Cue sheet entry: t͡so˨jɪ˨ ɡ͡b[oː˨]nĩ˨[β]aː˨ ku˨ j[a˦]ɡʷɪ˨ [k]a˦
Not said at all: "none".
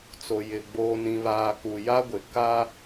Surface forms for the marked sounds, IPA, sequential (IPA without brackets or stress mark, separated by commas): oː˨, β, a˦, k